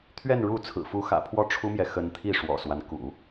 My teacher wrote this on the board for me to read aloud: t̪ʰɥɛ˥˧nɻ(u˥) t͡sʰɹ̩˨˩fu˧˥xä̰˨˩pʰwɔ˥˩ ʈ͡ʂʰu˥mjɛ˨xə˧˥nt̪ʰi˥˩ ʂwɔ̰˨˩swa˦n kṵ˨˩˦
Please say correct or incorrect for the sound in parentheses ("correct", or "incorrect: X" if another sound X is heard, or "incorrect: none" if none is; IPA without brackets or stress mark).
incorrect: u˥˩